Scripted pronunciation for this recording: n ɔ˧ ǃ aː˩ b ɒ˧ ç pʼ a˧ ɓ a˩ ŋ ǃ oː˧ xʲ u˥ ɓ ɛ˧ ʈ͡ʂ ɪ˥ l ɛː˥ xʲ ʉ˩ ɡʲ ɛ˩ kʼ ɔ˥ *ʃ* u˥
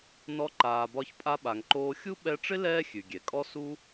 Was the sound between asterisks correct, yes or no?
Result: no